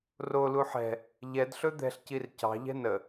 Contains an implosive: no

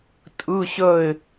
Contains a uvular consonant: no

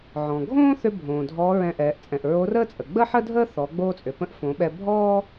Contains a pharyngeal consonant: yes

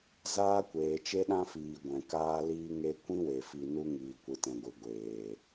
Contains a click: no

